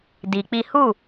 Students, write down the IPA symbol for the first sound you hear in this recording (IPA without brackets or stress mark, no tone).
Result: d